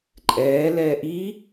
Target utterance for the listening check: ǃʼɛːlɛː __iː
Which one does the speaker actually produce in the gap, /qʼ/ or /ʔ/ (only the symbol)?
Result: ʔ